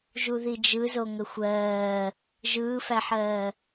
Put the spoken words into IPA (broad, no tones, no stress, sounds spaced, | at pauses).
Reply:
ʒ u ð i d͡ʒ ɯ z o ŋ ə xʷ ɜː | ʒ ɯː f æ ħ ɜː